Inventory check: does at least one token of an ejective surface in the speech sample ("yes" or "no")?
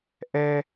no